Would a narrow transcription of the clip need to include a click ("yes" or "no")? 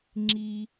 yes